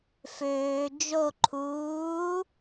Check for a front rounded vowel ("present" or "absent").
present